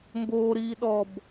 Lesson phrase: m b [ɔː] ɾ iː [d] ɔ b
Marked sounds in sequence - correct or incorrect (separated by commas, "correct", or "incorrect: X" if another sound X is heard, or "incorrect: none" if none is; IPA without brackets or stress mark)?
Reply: incorrect: oː, incorrect: ɗ